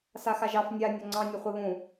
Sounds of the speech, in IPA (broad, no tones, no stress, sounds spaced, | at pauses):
s a x a ʒ ɑ f nʲ a nʲ o ŋ͡ǀ ɑ̃ nʲ ʊ χʷ e β ũ